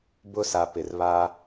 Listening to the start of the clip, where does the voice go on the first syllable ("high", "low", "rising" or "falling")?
high